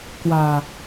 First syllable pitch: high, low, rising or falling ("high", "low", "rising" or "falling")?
low